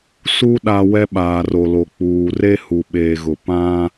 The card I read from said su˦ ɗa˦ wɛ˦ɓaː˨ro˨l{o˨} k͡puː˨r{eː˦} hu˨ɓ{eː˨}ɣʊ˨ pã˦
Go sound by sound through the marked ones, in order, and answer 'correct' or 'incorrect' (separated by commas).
correct, incorrect, correct